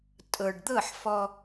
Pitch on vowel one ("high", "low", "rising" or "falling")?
low